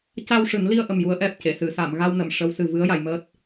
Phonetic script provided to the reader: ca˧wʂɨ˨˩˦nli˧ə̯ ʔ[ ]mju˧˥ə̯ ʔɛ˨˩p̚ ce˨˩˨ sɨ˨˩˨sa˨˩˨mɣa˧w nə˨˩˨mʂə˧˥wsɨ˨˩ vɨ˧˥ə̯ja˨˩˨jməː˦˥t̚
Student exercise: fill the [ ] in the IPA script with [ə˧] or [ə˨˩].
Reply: ə˨˩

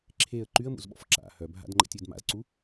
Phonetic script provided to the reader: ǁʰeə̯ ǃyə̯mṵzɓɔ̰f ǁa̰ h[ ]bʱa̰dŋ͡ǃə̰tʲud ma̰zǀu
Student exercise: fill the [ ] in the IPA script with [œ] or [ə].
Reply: œ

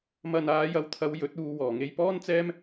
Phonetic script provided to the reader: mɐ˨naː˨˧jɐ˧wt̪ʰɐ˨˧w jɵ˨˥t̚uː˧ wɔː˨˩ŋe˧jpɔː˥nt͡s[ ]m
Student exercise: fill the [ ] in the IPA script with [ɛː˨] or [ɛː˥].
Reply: ɛː˥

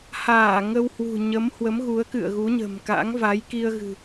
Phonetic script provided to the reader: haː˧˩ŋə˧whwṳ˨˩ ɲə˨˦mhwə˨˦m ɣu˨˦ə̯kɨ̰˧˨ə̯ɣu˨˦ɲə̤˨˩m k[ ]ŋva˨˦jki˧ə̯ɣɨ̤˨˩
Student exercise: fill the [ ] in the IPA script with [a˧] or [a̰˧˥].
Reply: a̰˧˥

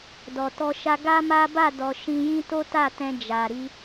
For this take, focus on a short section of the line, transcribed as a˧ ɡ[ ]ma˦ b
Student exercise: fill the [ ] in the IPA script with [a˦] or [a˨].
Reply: a˦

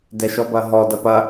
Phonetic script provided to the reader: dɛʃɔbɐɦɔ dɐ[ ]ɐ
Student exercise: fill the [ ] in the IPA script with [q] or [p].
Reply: p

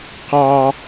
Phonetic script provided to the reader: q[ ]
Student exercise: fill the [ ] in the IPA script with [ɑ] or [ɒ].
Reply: ɑ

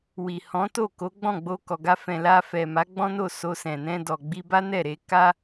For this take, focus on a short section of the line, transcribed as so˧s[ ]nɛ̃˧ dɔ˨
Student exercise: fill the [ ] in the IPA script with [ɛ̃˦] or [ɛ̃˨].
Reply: ɛ̃˨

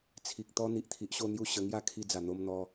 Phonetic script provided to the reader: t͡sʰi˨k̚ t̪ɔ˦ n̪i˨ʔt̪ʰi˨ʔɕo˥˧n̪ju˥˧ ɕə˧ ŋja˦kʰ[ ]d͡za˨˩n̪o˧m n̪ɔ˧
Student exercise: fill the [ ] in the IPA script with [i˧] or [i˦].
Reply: i˧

